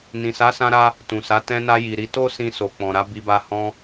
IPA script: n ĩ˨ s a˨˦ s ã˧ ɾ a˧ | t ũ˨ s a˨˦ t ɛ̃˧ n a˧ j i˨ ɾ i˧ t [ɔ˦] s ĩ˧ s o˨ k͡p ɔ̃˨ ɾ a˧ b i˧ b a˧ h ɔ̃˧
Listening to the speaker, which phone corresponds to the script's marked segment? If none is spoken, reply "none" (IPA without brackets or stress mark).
o˦